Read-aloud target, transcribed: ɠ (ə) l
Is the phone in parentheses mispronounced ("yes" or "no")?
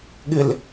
yes